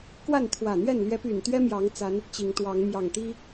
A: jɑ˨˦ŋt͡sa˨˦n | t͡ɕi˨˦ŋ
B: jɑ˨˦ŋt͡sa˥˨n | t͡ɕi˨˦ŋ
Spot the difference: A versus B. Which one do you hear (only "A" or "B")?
A